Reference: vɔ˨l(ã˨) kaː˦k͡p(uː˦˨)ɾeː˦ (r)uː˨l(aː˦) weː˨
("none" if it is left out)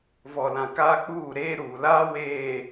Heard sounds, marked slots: ã˨, uː˦˨, ɾ, aː˦

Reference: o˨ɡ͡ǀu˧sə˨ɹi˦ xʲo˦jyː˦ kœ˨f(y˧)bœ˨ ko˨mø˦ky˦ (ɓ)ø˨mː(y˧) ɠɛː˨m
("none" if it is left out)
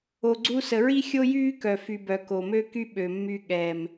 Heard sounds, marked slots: y˨, ɓ, y˧

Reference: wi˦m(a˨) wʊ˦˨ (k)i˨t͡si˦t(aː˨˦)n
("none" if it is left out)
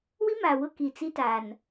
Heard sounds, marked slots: a˨, k, aː˨

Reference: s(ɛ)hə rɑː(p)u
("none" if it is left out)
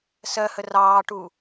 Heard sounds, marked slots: ɜ, ʈ

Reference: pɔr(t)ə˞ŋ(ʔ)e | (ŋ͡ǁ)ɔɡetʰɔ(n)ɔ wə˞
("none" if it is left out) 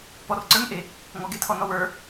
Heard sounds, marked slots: ǀ, ʔ, ŋ, n

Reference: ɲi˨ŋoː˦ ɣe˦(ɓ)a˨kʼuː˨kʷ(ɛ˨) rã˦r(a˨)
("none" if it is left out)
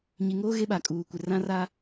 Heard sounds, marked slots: ɓ, ɪ˨, a˦

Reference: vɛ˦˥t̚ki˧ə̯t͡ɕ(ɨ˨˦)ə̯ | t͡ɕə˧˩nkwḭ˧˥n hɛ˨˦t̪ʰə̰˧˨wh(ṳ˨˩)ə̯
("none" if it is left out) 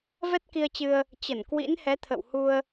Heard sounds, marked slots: ɨ˧, u˧

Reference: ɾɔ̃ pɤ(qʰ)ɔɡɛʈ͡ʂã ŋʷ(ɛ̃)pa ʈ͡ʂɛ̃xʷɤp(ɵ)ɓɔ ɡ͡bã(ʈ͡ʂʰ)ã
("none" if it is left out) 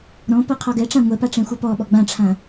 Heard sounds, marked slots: qʰ, ɛ, ɔ, ʈ͡ʂʰ

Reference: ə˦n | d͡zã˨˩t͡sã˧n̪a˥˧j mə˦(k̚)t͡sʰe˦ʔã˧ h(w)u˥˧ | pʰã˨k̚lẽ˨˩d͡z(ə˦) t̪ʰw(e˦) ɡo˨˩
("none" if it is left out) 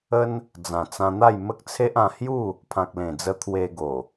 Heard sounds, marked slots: k̚, j, ə˧, e˧

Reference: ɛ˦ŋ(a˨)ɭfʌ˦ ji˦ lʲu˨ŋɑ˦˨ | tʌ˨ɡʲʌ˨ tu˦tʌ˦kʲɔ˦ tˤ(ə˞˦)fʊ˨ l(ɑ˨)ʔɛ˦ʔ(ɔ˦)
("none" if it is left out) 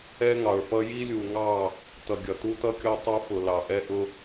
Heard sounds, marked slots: ɑ˨, ə˞˦, ɑ˨, ʊ˦

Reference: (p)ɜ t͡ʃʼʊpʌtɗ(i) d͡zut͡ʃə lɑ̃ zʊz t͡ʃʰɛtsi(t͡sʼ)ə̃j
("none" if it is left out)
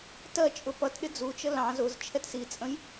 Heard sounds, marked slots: t, ɪ, t͡sʼ

